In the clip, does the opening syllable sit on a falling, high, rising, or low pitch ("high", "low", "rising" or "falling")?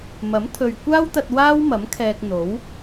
rising